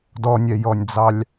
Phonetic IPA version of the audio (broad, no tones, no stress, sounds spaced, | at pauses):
d ɔ nʲ ɛ j ɔ nʲ d͡z ɑ lʲ